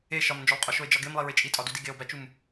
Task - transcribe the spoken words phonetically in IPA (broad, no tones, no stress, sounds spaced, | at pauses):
e ʃ ɒ m n d͡ʒ o lˠ qʼ o ʃ o e̯ d͡ʒ ɒ ɡ e m lˠ i ɹ e t͡ʃʼ i tʼ ɒ d u d i ɡ e o̯ b æ t͡ʃ u m